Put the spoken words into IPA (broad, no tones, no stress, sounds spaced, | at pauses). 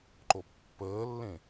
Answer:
ǃ o pː əː lː ẽ